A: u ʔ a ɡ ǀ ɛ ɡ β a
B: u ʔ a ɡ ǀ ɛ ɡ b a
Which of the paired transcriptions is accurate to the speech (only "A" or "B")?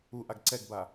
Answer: B